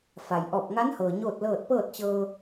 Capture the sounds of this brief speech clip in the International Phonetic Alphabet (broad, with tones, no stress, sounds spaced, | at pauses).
f a˩ j ʔ ɔː˧˩ p̚ ŋ a˧˥ n h ɤː˩ ɲ oː˥˨ t̚ l ɤː˥˨ t̚ p ɤː˥˨ t̚ t͡ɕ ɤː˧